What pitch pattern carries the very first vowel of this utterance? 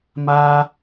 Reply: high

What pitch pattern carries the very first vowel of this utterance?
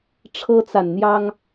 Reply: high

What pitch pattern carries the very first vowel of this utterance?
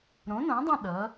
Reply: rising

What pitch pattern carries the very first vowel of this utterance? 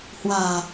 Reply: low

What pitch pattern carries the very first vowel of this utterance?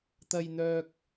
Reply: high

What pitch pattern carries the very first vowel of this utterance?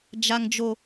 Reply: high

